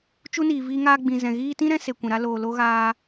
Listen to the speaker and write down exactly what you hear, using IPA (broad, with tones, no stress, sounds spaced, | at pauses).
t͡ʃ u˦ n iː˨ v iː˧ ŋ aː˧ ɡ͡b ĩ˨ z ɛ̃˨ ɣ iː˧ t ĩ˦ ɾ ɛ̃˧ s e˨ kʷ ɛ̃˨ ɾ a˧ l oː˨ l o˧ ɣ aː˧